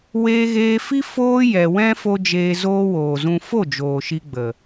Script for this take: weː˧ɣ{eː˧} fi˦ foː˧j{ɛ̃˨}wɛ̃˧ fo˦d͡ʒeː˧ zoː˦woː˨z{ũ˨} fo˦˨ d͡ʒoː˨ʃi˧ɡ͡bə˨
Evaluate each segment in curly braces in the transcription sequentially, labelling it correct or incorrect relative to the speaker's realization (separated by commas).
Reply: correct, incorrect, incorrect